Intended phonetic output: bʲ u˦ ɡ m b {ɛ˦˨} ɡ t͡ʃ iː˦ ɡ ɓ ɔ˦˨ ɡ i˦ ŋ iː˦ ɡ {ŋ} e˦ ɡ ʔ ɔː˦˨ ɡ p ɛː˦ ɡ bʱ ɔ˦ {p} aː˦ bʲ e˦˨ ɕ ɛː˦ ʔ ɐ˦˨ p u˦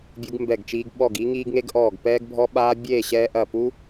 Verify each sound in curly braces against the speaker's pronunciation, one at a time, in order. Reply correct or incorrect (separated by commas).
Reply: correct, correct, incorrect